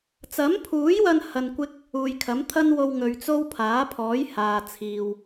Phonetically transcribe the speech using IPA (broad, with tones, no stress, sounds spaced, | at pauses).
t͡s ɐ˨˥ m pʰ uː˨˥ j w ɐ˧ n h ɐ˧ n kʷ ɪ˥ k̚ | uː˨ j kʰ ɐ˨˥ m t̪ʰ ɐ˥ n w o˧ w ŋ ɵ˨˧ ɥ t͡s o˥ w pʰ aː˨˥ pʰ ɔː˨˥ j h aː˨ t͡sʰ iː˨ w